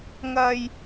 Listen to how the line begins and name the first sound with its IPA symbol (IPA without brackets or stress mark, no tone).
ŋ